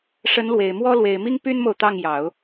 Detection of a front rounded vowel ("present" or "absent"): present